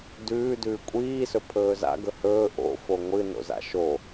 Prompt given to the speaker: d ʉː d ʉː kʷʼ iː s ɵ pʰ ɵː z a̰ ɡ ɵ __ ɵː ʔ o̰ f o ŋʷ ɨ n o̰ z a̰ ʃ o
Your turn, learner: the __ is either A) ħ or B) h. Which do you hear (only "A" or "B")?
B